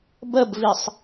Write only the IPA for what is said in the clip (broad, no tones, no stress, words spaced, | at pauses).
bəbvisˤ